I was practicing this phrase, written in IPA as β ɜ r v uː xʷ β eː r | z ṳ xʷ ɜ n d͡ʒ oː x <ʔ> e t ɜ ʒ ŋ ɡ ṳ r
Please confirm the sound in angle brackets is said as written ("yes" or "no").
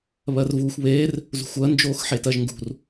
no